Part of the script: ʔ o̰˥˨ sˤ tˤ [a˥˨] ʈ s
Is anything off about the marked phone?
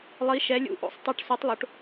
no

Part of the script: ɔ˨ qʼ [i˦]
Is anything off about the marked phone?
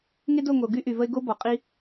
no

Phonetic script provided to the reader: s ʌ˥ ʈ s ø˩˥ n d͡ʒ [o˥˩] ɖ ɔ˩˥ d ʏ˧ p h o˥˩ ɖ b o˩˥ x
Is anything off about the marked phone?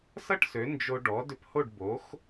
yes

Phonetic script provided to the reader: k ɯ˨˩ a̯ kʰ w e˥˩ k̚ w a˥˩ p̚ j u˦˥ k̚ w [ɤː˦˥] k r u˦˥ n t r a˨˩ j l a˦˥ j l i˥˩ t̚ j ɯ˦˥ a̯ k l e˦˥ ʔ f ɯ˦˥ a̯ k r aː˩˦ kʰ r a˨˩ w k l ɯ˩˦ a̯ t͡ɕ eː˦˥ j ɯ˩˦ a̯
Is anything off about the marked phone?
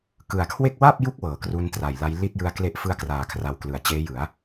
yes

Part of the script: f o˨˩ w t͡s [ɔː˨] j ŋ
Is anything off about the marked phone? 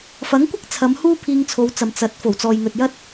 no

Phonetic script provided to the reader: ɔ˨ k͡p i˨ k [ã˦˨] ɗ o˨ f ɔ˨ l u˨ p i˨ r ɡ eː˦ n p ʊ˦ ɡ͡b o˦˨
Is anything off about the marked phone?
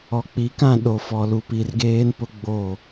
no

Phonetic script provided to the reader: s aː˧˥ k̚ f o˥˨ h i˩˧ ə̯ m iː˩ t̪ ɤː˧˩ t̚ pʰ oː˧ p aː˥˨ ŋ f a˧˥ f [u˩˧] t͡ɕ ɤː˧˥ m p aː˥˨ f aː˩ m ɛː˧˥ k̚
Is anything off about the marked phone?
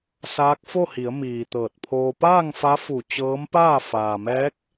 yes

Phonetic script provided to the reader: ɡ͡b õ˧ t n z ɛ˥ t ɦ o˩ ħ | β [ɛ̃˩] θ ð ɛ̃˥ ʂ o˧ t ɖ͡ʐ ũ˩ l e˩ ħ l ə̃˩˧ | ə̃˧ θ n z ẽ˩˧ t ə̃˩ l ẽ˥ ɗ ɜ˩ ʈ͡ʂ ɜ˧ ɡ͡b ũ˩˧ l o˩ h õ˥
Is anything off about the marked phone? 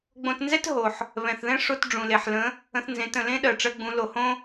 no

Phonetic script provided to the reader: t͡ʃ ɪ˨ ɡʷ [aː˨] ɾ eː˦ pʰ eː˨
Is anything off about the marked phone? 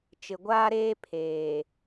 yes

